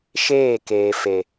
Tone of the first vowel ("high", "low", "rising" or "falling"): falling